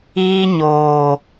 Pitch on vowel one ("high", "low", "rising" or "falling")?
high